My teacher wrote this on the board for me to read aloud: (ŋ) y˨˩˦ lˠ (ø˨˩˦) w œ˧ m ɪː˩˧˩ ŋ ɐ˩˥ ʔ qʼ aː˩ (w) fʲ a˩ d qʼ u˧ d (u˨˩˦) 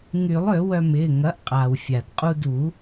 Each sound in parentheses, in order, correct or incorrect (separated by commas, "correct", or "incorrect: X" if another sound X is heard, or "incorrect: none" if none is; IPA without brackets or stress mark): correct, correct, correct, correct